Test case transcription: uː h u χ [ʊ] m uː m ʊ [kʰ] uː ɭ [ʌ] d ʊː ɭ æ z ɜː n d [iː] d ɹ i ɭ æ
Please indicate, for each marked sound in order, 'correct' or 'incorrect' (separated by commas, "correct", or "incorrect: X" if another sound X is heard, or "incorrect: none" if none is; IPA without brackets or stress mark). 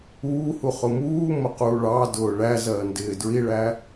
correct, incorrect: q, incorrect: ɑ, incorrect: ɪː